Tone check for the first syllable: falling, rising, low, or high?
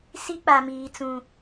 high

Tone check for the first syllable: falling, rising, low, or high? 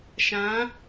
rising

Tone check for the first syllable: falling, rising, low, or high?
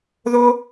high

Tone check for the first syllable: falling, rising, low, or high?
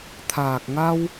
low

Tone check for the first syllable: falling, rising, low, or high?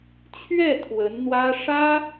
falling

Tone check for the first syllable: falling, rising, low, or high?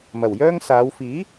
low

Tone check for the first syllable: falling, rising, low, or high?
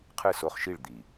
falling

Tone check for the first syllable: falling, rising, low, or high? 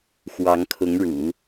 rising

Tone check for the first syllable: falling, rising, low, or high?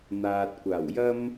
low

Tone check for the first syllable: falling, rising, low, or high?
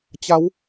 rising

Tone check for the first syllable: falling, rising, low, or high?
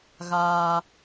high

